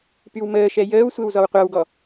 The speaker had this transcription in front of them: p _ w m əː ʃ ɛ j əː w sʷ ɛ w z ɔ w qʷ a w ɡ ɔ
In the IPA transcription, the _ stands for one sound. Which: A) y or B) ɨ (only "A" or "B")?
A